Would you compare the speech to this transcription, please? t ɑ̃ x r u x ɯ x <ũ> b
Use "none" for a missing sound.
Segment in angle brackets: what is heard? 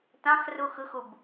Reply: u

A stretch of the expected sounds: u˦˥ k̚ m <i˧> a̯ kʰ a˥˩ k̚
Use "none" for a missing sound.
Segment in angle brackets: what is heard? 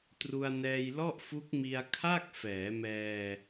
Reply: i˧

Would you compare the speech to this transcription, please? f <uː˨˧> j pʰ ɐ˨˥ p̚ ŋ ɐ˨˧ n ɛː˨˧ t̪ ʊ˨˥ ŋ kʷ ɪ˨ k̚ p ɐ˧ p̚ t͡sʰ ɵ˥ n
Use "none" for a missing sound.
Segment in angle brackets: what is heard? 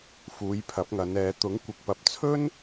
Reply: uː˨˧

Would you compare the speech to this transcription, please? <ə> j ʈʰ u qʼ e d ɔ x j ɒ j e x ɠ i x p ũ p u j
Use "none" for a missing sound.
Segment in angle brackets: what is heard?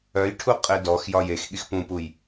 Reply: œ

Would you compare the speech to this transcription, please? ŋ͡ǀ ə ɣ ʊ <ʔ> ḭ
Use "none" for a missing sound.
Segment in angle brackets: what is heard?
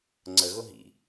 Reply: ɦ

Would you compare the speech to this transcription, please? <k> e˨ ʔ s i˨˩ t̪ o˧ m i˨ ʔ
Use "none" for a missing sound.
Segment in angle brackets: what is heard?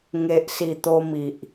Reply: ŋ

